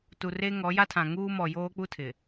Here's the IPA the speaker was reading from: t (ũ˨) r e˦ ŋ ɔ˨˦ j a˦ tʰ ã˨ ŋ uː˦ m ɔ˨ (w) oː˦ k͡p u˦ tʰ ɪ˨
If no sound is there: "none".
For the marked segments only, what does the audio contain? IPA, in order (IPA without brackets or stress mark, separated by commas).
u˨, j